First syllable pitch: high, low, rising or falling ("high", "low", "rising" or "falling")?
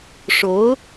rising